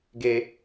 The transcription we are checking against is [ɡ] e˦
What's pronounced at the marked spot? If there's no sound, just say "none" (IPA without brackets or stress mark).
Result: ɡ